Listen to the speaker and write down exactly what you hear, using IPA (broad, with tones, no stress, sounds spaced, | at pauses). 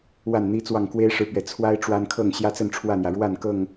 w a˥˨ n n̪ i˦ t͡s w ɑ˥˨ ŋ k w e˦ ɪ̯ ʂ ɻ̩˨ p ɥ ɛ˨˩ t͡sʰ w a˦ ɪ̯ ʈ͡ʂ w a˦ n kʰ ɤ˥˨ ŋ ɕ j ä˦ t͡s ə˥˨ n ʈ͡ʂʰ w ä˥˨ n̪ j ä˩ ɻ w a˥˨ n k ɤ˥˨ ŋ